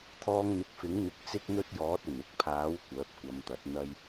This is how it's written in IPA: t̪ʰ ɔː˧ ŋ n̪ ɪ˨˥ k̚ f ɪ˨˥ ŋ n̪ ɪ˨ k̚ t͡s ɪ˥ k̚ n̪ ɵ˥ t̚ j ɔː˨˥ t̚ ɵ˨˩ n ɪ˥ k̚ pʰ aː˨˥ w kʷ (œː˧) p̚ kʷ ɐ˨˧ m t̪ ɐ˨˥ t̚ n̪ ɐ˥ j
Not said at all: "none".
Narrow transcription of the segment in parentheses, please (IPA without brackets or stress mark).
œː˨˥